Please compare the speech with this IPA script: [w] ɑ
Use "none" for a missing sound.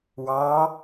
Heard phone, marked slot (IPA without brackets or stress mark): w